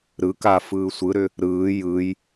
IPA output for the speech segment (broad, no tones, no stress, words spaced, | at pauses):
ɾɯka fɯːsʷɯɾʏ | ɾɯː jɯj